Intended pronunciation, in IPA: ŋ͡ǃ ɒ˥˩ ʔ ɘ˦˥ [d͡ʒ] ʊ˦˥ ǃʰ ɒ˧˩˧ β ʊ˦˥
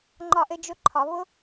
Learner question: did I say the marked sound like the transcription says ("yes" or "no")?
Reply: yes